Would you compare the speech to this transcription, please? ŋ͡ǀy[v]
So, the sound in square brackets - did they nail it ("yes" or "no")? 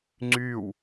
no